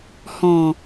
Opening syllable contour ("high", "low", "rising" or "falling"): low